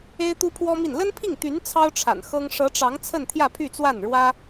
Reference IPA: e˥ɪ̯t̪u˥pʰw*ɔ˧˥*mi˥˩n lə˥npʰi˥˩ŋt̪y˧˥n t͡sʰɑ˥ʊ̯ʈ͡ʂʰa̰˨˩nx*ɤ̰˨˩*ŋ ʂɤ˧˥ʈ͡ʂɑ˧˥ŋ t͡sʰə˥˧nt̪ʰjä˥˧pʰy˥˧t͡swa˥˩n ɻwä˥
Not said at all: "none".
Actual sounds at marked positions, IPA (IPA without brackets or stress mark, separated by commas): ɔ˥, ɤ˥